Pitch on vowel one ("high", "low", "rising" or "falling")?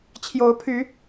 rising